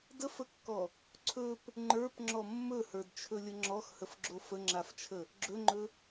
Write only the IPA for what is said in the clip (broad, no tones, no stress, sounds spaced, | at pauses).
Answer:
d ə f ə kː ɔ | ǀʰ ɵ p | ŋ͡ǃ ə˞ p ŋ͡ǁ ɔ mː ɵ h ə˞ d t͡ʃʰ ɵ lʲ ə ŋ͡ǁ ɔ x h ə f ɡ͡ǁ o f ə ŋ͡ǁ a f t͡ʃʰ ə | ɡ͡ǁ ɵ ŋ͡ǃ ɵ